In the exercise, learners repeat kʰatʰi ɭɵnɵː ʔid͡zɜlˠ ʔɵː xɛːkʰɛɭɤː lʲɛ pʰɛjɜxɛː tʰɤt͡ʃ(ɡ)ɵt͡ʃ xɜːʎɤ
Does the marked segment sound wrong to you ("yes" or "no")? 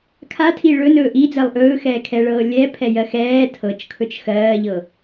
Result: yes